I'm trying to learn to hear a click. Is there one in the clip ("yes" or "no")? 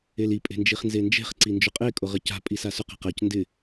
yes